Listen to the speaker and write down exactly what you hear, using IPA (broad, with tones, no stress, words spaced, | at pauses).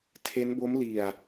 tʰe˦˥nbo˦˥m li˨˩a̯